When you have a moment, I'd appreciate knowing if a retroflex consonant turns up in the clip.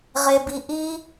no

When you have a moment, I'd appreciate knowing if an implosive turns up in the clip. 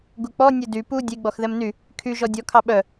yes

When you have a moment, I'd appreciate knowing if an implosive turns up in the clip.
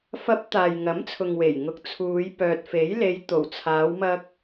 no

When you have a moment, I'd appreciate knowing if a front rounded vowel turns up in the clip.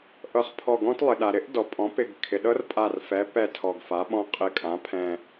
no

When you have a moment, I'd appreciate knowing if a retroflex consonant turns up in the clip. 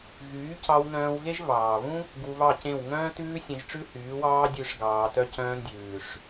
yes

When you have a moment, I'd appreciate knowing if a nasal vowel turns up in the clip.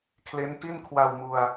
no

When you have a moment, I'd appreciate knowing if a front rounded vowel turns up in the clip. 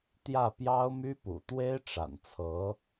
yes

